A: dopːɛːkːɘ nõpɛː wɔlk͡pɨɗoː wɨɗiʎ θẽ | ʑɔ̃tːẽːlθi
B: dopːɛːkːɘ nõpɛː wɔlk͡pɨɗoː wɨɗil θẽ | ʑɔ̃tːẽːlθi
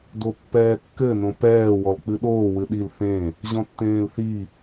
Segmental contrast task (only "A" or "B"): B